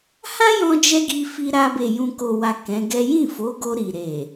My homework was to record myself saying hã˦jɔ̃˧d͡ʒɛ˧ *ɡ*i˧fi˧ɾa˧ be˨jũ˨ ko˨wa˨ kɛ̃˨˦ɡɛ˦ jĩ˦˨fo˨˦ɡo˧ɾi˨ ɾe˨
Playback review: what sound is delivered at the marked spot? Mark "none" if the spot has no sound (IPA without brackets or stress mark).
ɡ